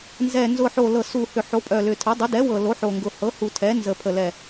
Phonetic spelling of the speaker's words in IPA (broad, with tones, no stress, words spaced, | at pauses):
nzɛ˨˩nzʊ˨˩ ħo˨˩lɤ˨˩su˨˩hʏ˨˩ ħo˩˥pʼœ˨˩lʏ˨˩tʰə˩˥ dˤʊ˩˥dɛ˩˥wɤ˨˩ lo˩˥ħo˨˩ŋɡʊ˨˩ hɤ˩˥hu˨˩tʰɛ˩˥ nzə˨˩pʰə˨˩lɛ˨˩